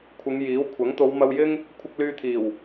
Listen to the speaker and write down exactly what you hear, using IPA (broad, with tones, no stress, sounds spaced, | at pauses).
kʷʰ ɪ˨˧ ŋ j iː˨˥ w kʷʰ ɐ˨˥ ŋ t̪ o˨˧ w m ɐ˧ w j ɪ˥ ŋ | kʷʰ ɪ˧ k̚ l yː˧ t̪ʰ iː˨˩ w